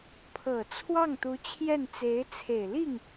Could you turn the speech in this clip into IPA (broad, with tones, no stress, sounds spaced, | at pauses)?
pʰ ɤ˨˩ t͡sʰ w ɑ˥˩ ŋ t̪ u˧˥ t͡ɕʰ j ɛ˥˩ n t͡s e˧˥ ɪ̯ t͡sʰ e˨˩ ɪ̯ l i˥˩ ŋ